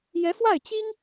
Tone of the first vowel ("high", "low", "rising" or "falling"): rising